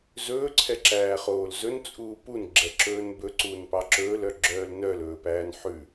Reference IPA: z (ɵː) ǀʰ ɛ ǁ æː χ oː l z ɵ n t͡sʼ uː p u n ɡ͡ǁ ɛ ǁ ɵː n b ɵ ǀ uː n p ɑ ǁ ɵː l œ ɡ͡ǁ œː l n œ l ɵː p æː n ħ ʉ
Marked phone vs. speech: correct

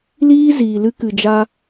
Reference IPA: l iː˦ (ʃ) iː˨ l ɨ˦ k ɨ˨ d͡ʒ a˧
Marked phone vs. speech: incorrect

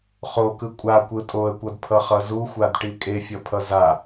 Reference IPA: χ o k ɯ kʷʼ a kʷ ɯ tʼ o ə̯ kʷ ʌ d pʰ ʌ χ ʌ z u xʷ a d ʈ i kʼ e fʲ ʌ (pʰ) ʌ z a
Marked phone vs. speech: correct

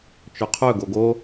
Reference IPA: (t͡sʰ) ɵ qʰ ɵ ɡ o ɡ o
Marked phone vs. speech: incorrect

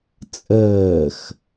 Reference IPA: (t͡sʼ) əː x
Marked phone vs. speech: correct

